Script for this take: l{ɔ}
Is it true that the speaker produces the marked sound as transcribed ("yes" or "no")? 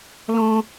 no